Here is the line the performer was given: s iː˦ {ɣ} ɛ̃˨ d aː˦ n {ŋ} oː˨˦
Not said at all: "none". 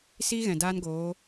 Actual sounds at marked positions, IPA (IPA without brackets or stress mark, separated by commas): ɣ, ɡ